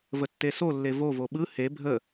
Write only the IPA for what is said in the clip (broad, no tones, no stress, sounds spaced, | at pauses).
v ə tː e s o lː e v o v o ɓ ɯ h e bʱ ə